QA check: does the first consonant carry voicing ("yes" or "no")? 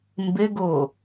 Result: yes